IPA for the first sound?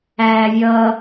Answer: æː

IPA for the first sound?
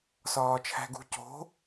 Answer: s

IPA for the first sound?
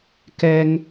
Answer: k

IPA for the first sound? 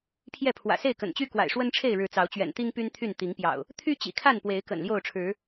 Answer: pʰ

